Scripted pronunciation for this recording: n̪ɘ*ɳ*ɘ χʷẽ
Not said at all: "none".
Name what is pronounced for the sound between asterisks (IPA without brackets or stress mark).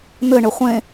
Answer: ɳ